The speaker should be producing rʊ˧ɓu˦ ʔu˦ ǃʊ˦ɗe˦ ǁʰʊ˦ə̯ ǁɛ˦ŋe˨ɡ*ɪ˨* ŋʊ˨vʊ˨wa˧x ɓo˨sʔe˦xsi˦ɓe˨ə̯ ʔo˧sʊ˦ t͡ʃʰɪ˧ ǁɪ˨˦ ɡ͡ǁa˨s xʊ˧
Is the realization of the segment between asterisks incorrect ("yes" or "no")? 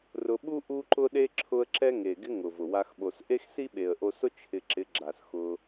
yes